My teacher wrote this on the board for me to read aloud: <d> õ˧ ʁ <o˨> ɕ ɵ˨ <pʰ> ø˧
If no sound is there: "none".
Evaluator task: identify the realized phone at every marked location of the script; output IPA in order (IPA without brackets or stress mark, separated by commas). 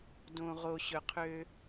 d, o˨, qʰ